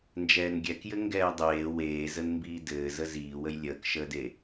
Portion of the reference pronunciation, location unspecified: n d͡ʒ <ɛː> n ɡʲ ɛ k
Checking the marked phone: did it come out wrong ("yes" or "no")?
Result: no